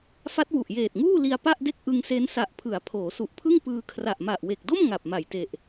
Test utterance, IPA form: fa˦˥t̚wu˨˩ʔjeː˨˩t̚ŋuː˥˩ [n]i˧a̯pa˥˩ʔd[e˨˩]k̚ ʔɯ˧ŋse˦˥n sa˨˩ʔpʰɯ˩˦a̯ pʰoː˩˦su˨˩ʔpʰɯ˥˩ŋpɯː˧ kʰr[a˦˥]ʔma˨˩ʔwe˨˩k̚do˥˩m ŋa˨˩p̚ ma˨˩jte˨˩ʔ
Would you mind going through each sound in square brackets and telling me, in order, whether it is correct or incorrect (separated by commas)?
incorrect, incorrect, incorrect